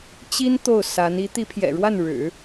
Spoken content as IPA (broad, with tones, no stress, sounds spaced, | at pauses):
t͡ɕ i˥ n t̪ o˥˩ ʊ̯ s a˧˥ n i˧˥ t̪ i˧˥ pʰ j ɛ̰˨˩ ɻ w a˥˩ n ɻ ɻ̩˨˩˦